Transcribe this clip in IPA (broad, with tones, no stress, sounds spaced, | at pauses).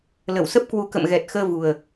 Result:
l ə˧˩ w s ə˦˥ p̚ k w u˨˦ k ə̰˧˨ m ɣ ɛ˨˩ t̚ x əː˧ v u˨˩ ə̯